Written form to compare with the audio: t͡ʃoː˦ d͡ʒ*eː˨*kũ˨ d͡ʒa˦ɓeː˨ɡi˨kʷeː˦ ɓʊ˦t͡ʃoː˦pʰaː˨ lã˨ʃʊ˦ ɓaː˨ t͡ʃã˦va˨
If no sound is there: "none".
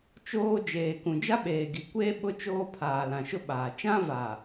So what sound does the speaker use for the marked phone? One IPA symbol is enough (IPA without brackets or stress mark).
eː˨